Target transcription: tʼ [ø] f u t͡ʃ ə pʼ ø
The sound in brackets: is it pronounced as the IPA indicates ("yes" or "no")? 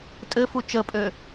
no